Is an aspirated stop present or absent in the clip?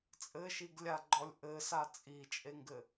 absent